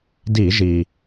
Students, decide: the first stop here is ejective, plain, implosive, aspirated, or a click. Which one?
plain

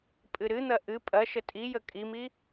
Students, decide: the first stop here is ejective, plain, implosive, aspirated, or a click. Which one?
ejective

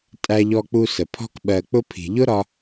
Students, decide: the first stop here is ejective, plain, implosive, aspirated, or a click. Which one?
ejective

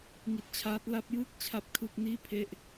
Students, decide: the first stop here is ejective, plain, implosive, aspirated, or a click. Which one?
plain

